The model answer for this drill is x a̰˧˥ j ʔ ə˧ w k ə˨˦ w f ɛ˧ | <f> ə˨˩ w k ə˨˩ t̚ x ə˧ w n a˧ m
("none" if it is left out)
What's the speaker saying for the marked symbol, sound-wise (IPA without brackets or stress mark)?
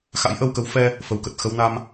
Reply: f